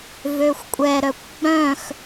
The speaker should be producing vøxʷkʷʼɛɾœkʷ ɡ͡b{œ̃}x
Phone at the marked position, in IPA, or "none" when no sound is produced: œ̃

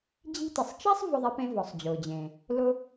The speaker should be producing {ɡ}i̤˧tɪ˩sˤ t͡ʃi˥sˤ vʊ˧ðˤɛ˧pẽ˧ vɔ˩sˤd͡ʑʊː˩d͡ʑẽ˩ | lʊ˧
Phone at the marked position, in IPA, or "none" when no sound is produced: d͡ʑ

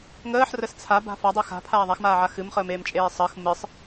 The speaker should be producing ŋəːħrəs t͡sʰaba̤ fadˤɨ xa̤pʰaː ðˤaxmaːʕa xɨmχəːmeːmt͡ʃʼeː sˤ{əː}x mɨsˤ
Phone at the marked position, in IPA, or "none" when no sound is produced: əː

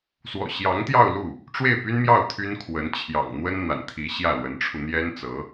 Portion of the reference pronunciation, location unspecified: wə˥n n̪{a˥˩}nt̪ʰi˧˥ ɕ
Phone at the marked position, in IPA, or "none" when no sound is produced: a̰˨˩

